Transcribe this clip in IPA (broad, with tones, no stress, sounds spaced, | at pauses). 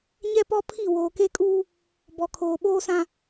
ɲ ɛ˦ p ɔ˦ pʰ i˦˨ w oː˨ k e˦ kʼ uː˦ | b ɔ˨ kʰ oː˨ ɓ oː˦ s ã˦